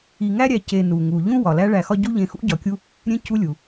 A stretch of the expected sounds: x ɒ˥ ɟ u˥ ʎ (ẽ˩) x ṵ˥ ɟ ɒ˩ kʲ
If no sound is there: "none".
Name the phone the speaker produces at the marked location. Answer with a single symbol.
ẽ˨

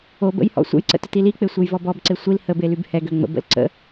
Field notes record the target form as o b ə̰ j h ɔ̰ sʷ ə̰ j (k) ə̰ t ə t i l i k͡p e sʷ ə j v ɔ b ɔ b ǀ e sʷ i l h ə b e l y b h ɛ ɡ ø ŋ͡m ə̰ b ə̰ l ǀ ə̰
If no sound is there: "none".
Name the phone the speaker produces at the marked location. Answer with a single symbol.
ǀ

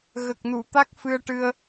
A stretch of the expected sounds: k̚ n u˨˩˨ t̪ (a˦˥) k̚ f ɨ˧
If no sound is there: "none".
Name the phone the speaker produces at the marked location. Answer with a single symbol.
a˦˥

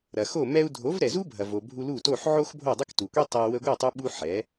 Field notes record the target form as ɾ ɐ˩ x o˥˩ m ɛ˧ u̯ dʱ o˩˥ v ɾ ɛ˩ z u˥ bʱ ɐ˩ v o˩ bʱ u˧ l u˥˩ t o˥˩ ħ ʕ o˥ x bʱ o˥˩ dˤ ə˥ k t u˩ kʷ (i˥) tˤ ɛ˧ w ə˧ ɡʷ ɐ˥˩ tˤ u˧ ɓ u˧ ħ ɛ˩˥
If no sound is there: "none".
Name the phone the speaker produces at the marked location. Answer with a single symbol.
i˥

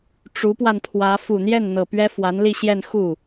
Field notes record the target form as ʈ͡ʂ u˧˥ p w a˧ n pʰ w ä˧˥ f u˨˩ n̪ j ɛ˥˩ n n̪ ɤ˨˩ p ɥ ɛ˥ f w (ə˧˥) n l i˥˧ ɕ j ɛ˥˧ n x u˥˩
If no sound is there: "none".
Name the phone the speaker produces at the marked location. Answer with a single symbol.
a˧˥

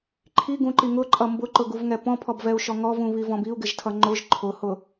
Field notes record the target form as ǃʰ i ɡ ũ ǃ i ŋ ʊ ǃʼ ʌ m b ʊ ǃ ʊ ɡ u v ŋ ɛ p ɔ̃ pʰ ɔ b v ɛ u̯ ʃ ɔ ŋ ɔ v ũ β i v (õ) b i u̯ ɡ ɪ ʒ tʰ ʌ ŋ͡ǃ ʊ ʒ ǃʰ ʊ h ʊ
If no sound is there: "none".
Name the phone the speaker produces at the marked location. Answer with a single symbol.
ɔ̃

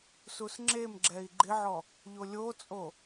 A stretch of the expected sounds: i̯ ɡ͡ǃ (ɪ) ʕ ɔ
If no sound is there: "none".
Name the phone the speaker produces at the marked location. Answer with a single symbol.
ɪ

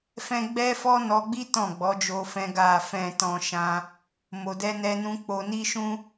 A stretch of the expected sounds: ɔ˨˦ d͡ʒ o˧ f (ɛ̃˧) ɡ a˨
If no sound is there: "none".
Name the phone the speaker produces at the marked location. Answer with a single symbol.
ɛ̃˧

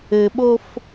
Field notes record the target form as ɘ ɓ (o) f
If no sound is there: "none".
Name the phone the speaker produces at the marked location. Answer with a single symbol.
o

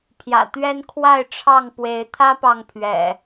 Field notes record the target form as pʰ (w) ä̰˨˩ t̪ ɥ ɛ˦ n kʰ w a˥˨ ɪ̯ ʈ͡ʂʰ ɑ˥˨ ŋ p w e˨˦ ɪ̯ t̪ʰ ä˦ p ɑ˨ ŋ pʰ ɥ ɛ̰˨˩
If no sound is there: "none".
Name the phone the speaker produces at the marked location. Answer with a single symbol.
j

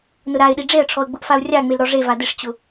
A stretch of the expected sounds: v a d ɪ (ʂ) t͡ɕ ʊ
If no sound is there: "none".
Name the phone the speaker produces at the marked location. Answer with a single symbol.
ʂ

